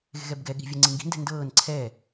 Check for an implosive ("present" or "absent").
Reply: present